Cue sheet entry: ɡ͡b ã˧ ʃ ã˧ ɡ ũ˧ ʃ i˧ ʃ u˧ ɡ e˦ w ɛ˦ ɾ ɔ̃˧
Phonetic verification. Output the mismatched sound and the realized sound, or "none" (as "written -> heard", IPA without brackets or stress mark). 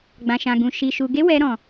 none